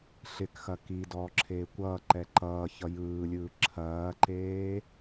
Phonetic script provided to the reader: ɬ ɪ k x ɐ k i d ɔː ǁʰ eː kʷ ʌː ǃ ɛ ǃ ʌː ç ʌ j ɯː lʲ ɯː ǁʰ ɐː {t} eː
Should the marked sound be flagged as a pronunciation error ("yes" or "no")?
yes